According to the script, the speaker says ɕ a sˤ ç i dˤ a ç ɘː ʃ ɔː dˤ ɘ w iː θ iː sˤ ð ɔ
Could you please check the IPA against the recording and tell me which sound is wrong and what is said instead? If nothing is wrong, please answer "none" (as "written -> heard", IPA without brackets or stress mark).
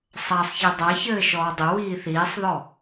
ɕ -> sˤ